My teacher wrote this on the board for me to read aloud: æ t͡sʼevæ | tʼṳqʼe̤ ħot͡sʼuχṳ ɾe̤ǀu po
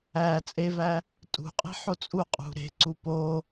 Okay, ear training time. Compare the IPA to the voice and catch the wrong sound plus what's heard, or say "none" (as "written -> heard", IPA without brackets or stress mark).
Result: χ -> qʼ